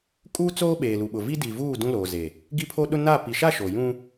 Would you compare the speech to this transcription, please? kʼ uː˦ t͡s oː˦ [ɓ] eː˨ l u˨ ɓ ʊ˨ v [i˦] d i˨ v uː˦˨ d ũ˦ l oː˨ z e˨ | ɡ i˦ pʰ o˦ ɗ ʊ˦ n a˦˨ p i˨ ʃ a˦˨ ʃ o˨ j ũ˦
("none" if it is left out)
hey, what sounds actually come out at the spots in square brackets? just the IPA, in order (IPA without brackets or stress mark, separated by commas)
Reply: ɓ, i˦